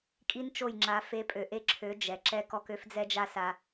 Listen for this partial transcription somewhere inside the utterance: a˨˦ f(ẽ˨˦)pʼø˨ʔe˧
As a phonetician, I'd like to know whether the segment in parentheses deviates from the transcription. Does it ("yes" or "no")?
yes